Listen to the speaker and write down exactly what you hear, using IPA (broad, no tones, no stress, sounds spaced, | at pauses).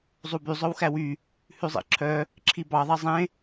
zˤ u b y zˤ œ w x æ w y | h ʉ zˤ ḭ ǁʰ œ | ǁʰ i b ɑ ðˤ ɛ zˤ ẽ